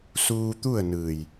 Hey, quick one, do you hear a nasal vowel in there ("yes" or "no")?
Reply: no